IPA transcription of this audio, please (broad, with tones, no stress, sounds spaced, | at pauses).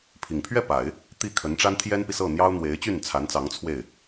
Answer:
pʰ i˨˩ ŋ pʰ ɥ ɛ˥˩ p a˨˩˦ ɪ̯ | t̪ i˥˩ kʰ ə˧˥ n ʈ͡ʂ a˥ n t̪ʰ j ɛ˥ n p i˨ s ɤ˥˩ n̪ j ɑ˥ ʊ̯ n̪ w e˧˥ ɪ̯ t͡ɕ y˥˩ n t͡sʰ a˧˥ n t͡s ɑ˧˥ ŋ t͡sʰ w e˥˩ ɪ̯